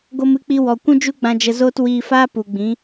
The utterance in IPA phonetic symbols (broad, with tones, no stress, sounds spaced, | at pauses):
ɡ o˧ m ɨ˧ k͡p i˧ w ɔ˨ kʷ ũ˦ d͡ʒ u˦ ɡ͡b ã˧ d͡ʒ ə˧ z oː˦ t w iː˧ f aː˦ p u˨ ɡ͡b ĩ˨˦